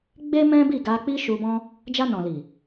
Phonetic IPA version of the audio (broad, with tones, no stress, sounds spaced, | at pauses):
ɡ͡b e˦ m ɛ̃˦ b i˦˨ ɡ a˧ k͡p i˦ ʃ u˧ b ɔ̃˦ | d͡ʒ a˧ n ɔ̃˨ l i˨